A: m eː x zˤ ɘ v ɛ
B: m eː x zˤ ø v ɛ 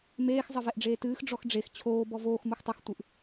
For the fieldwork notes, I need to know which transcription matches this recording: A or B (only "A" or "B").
A